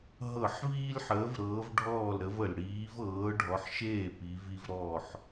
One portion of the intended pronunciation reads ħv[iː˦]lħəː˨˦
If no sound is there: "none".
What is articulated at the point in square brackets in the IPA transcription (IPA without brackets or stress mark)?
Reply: iː˦